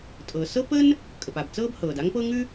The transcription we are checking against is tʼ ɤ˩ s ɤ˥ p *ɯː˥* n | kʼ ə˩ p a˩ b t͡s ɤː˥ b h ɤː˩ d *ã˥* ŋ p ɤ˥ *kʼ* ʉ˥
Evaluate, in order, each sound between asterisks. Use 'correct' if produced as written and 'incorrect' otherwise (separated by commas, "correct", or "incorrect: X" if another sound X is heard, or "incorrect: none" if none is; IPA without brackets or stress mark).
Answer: incorrect: əː˥, incorrect: a˥, incorrect: ŋ